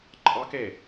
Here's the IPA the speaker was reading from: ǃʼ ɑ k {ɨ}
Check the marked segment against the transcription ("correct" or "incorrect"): incorrect